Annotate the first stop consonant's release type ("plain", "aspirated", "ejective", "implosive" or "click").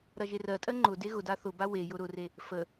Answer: ejective